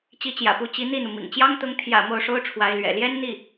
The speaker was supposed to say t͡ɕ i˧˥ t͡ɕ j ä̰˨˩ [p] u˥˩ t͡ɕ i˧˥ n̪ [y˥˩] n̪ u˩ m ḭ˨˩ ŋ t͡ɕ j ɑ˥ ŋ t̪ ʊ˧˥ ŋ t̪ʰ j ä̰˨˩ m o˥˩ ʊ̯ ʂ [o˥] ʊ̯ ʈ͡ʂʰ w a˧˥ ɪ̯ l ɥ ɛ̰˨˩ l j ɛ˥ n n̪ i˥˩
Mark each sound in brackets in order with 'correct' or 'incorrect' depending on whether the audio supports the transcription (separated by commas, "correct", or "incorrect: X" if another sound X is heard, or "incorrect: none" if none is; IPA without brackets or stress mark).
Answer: correct, incorrect: i˥˩, correct